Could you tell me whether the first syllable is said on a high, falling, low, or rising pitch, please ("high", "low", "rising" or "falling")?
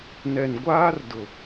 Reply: low